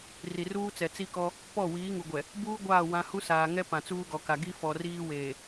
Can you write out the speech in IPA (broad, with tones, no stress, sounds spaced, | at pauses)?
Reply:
r i˨ r uː˦ t͡s ɛ˨ t͡s i˦ k ɔ˦ | p ɔ˦˨ w iː˨˦ ŋ u˨ ɡʷ ɛ˨ | b uː˦ ɡʷ aː˦˨ w ã˦ h u˦ s aː˨ ŋ ɛ˦ p ã˨ t͡s uː˦ ɡ ɔ˨ k a˨ ɡ i˦ f ɔ˨ r iː˦ w eː˨